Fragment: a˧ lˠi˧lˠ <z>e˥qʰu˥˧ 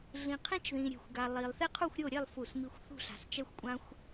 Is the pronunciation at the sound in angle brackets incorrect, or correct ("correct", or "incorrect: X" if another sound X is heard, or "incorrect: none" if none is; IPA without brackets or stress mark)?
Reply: incorrect: θ